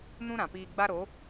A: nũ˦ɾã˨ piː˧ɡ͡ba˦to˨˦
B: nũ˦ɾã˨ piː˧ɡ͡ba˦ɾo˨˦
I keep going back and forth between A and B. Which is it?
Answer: B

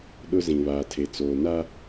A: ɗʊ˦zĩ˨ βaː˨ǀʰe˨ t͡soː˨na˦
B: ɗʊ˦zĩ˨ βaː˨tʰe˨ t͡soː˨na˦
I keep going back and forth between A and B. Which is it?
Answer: B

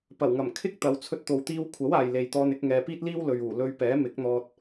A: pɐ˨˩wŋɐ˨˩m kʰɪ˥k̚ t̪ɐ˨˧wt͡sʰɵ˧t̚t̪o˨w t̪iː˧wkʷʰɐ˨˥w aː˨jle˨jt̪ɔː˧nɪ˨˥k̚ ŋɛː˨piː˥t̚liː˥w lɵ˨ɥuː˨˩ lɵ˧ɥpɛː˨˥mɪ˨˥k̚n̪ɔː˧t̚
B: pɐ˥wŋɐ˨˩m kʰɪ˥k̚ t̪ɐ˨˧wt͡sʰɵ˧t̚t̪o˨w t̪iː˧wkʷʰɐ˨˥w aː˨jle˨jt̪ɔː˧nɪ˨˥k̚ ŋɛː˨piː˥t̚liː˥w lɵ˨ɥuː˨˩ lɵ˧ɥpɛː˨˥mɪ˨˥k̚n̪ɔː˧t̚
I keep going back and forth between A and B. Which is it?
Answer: A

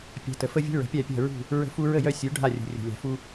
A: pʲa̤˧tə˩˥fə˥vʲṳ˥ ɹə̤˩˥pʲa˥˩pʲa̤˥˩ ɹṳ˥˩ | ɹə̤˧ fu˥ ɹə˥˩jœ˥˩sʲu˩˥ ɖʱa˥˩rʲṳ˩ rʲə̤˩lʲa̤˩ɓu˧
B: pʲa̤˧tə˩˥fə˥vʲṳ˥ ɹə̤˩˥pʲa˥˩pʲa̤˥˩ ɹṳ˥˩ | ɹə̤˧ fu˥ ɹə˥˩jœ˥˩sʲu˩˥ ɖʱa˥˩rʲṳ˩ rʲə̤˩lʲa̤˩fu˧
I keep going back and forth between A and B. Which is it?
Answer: B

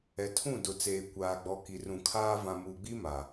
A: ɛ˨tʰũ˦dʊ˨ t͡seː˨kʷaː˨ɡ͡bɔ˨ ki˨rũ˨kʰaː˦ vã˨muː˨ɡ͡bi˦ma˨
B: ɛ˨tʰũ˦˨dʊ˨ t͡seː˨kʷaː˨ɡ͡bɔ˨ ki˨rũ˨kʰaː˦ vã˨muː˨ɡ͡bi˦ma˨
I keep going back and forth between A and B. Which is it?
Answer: B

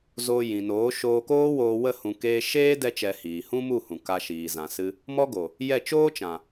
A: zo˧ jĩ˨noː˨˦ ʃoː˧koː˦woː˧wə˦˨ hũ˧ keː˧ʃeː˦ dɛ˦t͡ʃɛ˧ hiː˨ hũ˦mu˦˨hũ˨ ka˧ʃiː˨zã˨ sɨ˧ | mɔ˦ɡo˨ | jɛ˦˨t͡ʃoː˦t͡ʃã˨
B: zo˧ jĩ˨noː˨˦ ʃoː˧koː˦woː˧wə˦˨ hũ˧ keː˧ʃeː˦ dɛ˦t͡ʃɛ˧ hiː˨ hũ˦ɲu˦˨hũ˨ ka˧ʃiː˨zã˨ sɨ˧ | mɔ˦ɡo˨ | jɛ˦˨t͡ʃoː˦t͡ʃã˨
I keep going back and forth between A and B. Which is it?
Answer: A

